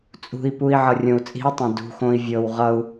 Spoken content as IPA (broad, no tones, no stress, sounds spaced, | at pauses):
t͡sʼ ṳ i̯ p u i̯ ʕ ʌ rʲ õ u̯ t͡sʼ i̤ u̯ tˤ ẽ d ṳ x õ i̯ vʲ ɤ w ʁ ʌ u̯